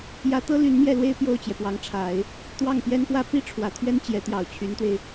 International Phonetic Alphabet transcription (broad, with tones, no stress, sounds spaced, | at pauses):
j ä˧˥ t̪ ɤ˥ l y˧˥ n m j ɛ˥˩ l w e˥ ɪ̯ p j o˥˩ ʊ̯ t͡ɕ j ɛ˩ p w ɑ˧˥ ŋ ʈ͡ʂʰ a˨˩˦ ɪ̯ | t̪ w ɑ˥˩ ŋ p j ɛ˥ n p w ä˥ p i˥ ʈ͡ʂʰ w ä˨˩ t̪ʰ ɥ ɛ˥ n t͡ɕ j ɛ˧˥ t̪ j ɑ˨˩ ʊ̯ t͡ɕʰ y˧˥ n t̪ w e˧ ɪ̯